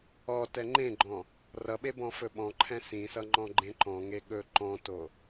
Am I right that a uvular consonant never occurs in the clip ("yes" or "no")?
yes